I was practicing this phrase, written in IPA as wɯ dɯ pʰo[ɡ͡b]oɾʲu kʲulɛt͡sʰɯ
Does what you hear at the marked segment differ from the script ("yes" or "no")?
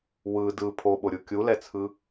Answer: yes